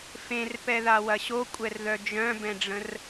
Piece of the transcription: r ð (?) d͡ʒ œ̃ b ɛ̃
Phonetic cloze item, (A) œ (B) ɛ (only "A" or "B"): A